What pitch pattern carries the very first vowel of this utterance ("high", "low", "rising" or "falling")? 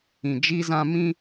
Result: low